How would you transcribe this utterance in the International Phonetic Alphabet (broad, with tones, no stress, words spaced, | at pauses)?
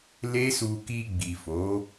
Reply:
le˦su˧ ki˧ɡ͡bi˨fo˨˦